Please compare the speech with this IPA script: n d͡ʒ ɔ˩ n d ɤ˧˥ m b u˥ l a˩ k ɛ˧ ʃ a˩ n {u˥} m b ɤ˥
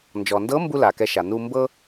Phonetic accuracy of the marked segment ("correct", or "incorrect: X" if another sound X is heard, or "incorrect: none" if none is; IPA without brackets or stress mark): incorrect: u˧